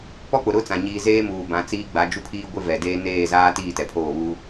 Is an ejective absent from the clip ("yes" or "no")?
yes